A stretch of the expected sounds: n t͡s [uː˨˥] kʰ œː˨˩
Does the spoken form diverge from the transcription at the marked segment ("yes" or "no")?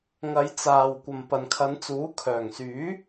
no